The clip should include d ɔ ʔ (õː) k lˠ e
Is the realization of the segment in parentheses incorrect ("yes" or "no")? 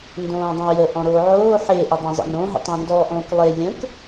no